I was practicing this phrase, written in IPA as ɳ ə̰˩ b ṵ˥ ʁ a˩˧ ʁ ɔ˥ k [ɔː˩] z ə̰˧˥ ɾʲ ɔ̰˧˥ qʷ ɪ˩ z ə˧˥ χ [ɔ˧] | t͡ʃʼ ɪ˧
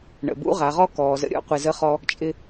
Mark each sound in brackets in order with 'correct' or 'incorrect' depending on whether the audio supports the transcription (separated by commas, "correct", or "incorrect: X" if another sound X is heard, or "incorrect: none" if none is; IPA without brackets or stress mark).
correct, correct